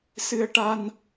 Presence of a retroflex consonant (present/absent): present